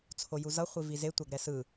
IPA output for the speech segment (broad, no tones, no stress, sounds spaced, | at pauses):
t͡sʰ o j u z ʌ χʷ i v i z e tʷ a ɡ ɾ ɛ s ɯ